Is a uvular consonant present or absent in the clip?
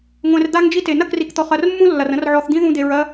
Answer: present